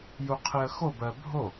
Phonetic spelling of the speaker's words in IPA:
j u qʰ i ə̯ x o b ɜ bʱ o

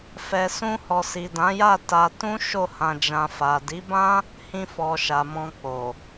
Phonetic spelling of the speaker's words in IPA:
f ɛ˨ s ũ˧ h ɔ˨ s i˨ d ã˨˦ j a˦˨ t a˧ t ũ˦ ʃ o˦˨ h ã˧ d͡ʒ ã˧ f a˨ d i˨˦ b ã˦ | h ĩ˧ f ɔ˨ ʃ a˨ m ɔ̃˧ k͡p o˨

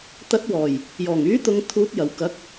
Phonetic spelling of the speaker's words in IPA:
t̪ ɐ˨˥ t̚ w ɔː˨˩ j | j ɔː˨˩ ŋ yː˨˥ t̪ ʊ˨ ŋ t̪ʰ uː˨˥ t̚ j ɐ˨˩ w k ɐ˨˥ k̚

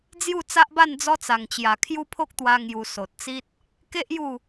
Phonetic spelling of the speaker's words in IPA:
d͡z j u˥˧ t͡s a˦ ʔ b a˥˧ n d͡z ɔ˦ t͡s a˨˩ ŋ t͡ɕ j a˨˩ kʰ j u˦ pʰ o˦ k̚ t̪ w a˧ ŋ j u˧ s o˨ t̚ t͡s i˦ t̚ | k e˦ ʔ j u˥˧

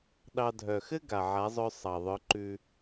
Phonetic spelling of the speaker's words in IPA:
ɗ ɑ˧ dʱ œ˨ x ɘ˦ ɡ a˨ ʕ a˨˦ zˤ œ˧ sˤ ɑ˨ ðˤ œ˨˦ ǃ ʉ˧

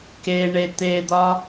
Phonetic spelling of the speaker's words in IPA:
k e ɳ e t̪ e d̪ ɒ

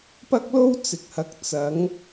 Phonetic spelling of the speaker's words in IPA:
p ɐ˥ k̚ l o˥ w t͡s ɪ˨ k̚ h ɐ˨˥ k̚ t͡s ɐ˨˧ ŋ

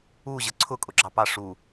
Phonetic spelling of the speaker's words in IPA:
u ʑ ə ǀʰ ʊ kʼ ʊ ɡ͡ǁ ɑ p ɑ ʂ u

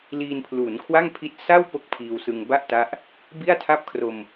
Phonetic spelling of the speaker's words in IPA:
l iː˧ n pʰ l uː˩˦ n kʰ w a˥˩ ŋ pʰ i˦˥ t̚ s a˥˩ w p o˥˩ k̚ pʰ iː˧ w s ɯ˧ ŋ b a˥˩ ʔ t a˦˥ ʔ | b i˥˩ a̯ tʰ a˥˩ p̚ kʰ r o˧ m

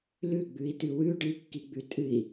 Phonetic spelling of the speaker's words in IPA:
l ʉ ɡ͡b ʉ i̯ t ʉ w ʉ ɖ ɨ kː i ɡ͡b ʉ tʼ ɨ i̯

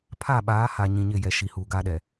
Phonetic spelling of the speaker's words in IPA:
pʰ a˦˨ ɓ aː˨˦ h a˨ ɲ ĩ˨ ɲ ɪ˦˨ j ɛ˨ ʃ i˨ h uː˨ ɡ aː˦ ɗ ɛ˨

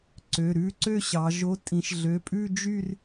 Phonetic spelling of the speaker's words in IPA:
ǀ ø˩˧˩ ɾ ʉ˥˧ ǀ ø˥˧ ɕ ɑ˩˧ ʒ o˨˥ tʼ ĩ˩˧ ʃ ɮ ø˩˧˩ pʼ ʉ˥˧ d͡ʒ y˥˧ r

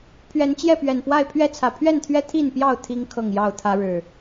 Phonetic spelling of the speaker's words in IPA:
pʰ ɥ ɛ˨˦ n t͡ɕ j ɛ˥˨ p ɥ ɛ˨˩ n p w a˥˨ ɪ̯ pʰ ɥ ɛ˦ t͡sʰ ä˨˩ pʰ ɥ ɛ˥˨ n t̪ʰ ɥ ɛ˦ t̪ʰ i˥˨ n p j ɑ˥˨ ʊ̯ t̪ʰ i˦ ŋ kʰ ɤ˥˨ ŋ j ɑ˥˨ ʊ̯ t̪ʰ ä˦ ɻ ɻ̩˨˩

